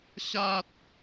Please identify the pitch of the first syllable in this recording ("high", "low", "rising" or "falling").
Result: high